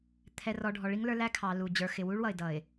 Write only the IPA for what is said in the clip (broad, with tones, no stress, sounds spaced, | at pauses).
t̪ʰ ɛ˨ r ɔ˨ ɖʱ ɔ˨ ɭ i˦ ŋ l ə˞˦ l æ˦ kʰ ɑ˨ l u˨ d͡ʑ ə˞˨ x ɪ˨ w u˦ ɭ w ʌ˨ ɪ̯ d ʌ˨ ɪ̯